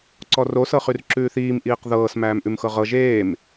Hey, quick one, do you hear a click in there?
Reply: yes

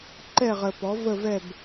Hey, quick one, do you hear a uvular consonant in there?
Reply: yes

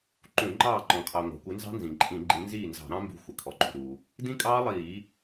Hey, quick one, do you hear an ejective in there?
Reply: yes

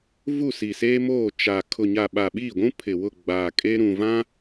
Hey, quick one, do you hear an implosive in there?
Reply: yes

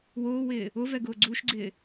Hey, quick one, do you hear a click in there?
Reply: yes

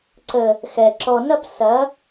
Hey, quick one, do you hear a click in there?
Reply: yes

